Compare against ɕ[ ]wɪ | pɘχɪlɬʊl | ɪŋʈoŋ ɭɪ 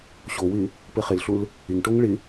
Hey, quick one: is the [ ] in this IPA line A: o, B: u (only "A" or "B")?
A